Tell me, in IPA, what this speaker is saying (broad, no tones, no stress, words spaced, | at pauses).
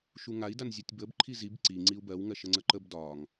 ʃuŋai̯ danzʲɒtʲbəb ǃʰizib ǀi ŋ͡ǀiu̯bɜw ŋɜʃəŋ͡ǀəǃəb dɒŋ